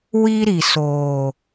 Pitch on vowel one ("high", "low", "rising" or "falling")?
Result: high